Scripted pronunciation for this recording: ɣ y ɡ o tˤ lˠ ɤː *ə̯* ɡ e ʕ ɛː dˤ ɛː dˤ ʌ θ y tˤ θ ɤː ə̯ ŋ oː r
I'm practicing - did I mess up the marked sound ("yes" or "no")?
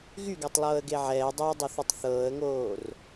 no